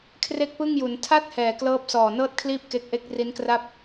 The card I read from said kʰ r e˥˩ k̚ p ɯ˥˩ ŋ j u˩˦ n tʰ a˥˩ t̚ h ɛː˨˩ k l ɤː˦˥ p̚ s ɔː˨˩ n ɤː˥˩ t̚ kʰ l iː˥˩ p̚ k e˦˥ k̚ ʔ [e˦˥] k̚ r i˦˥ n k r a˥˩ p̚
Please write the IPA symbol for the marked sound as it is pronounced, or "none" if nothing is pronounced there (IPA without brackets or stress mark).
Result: e˦˥